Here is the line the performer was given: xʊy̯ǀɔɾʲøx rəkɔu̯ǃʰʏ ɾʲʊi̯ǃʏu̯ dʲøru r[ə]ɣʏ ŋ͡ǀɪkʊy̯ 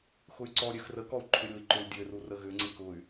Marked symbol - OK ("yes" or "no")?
yes